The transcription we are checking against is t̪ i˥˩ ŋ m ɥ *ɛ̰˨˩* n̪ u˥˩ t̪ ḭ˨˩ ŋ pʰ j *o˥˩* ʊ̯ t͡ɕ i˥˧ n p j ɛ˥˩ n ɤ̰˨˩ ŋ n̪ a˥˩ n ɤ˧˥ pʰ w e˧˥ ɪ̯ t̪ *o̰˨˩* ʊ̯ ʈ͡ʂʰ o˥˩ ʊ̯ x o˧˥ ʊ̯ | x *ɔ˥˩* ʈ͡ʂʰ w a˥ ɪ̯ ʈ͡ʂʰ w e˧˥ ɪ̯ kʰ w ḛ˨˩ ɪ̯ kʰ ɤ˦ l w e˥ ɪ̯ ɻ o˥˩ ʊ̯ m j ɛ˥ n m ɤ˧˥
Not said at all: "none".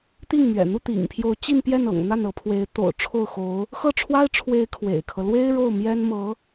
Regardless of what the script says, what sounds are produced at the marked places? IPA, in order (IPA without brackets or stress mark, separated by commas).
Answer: ɛ̰˨˩, o˧˥, o̰˨˩, ɤ˥˩